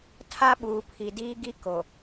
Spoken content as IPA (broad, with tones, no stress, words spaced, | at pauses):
tʰa˦ɓuː˨pʰi˨ diː˦ ɡi˦ ko˨